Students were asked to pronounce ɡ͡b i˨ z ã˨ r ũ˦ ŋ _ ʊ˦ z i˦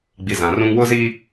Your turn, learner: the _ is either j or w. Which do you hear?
w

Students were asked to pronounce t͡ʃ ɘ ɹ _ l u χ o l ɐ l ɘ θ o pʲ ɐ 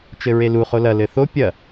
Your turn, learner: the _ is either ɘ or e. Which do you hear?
e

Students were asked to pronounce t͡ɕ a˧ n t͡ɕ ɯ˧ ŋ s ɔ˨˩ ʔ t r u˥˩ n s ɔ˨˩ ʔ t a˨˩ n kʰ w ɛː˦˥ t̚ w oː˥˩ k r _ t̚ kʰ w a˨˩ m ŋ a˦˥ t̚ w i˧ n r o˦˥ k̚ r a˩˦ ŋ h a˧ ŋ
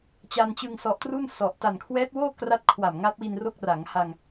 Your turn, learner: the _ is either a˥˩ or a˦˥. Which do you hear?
a˦˥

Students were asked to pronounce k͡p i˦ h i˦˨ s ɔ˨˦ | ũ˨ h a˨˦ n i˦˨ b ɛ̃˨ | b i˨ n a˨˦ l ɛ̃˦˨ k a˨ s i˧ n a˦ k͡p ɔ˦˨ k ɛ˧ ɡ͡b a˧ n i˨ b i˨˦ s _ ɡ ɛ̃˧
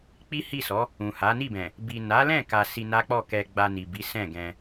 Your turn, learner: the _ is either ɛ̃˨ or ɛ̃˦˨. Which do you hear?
ɛ̃˦˨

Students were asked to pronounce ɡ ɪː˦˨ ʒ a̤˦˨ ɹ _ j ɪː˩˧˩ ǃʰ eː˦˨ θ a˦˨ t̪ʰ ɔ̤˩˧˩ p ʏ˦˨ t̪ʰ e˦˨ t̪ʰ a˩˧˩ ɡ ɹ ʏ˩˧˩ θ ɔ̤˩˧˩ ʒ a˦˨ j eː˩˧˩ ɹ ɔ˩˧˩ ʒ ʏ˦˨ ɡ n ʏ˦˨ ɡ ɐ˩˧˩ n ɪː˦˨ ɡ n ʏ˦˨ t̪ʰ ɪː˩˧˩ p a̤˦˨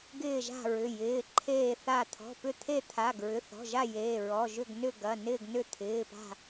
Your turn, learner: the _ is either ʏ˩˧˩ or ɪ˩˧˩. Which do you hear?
ʏ˩˧˩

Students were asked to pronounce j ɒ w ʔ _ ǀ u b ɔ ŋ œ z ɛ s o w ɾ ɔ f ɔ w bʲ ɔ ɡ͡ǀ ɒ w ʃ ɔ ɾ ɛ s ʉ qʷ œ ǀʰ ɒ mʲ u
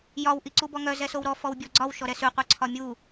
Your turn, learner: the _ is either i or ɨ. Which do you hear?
i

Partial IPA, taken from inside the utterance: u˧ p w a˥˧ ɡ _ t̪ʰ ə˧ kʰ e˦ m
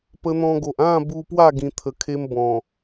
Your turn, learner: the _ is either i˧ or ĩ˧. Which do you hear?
ĩ˧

